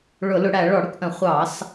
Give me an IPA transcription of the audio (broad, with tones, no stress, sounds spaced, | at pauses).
ɭ ʊ˧˩˧ l ʊ˧˩˧ ɽ æ˧˩˧ ɭ ɔ˧˩˧ ɽ ʊ˥˨ k ʔ ə̃˧˩˧ χʷ ɑ˧˩˧ s